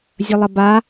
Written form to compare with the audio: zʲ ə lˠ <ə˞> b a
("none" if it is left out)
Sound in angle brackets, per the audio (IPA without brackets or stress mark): ə